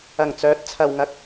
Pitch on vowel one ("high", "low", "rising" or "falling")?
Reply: low